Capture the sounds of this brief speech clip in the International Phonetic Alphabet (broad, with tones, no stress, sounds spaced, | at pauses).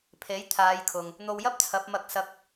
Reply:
pʰ e˨˥ j t̪ʰ aː˨˧ j kʰ ʊ˨ ŋ | n̪ o˧ w j ɐ˥ p̚ t͡sʰ ɐ˨˥ p̚ m ɐ˧ k̚ s ɐ˧ k̚